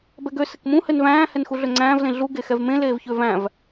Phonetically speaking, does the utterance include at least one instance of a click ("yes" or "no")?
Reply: yes